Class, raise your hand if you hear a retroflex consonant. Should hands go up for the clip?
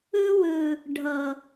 yes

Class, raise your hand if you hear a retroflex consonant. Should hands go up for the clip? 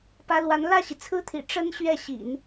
yes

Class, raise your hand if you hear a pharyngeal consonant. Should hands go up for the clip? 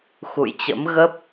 no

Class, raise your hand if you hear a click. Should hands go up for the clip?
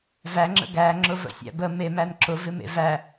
yes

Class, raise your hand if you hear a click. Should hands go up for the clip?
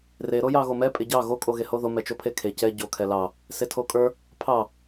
no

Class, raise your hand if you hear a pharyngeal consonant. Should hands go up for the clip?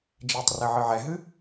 yes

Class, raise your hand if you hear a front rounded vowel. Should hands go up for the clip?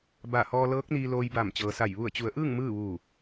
no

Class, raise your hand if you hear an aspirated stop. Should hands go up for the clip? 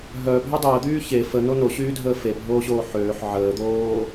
no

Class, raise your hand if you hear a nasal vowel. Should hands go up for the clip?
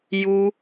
no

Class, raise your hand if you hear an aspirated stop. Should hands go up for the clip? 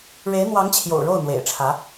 yes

